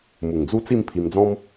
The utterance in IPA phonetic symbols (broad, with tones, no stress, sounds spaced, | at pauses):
m u˨˩ ŋ d͡z u˦ t͡s i˥˧ m pʰ i˧ m d͡z ɔ̃˦ m